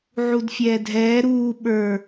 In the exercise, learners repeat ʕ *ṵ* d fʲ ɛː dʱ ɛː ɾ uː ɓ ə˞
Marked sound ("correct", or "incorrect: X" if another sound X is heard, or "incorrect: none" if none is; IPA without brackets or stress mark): incorrect: u